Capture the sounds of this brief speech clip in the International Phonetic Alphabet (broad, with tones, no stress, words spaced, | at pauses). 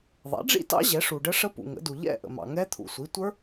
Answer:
ðˤɛ̰˩˥ɖ͡ʐḭ˥˧tɑ̰˦˥ ʑɛ˩˥ʂu˨ɖə˦˥ ʂə˦˥pṵ˨ŋə̰˩˥du˨ ʎɛ̰˥˧ʔə̰˨mɑ̰˨ ŋɛ˦˥ t̪ʰṵ˨sʷi˩˥tʷə˞˦˥